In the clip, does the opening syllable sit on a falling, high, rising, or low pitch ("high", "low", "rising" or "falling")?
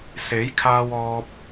rising